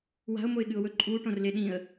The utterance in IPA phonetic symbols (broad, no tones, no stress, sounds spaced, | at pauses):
w a̤ ʊ̯ m o ɪ̯ ɠ ɨ ʊ̯ w ɵ ǃʼ u ʈ õ r l e ɗ ĩ ə̯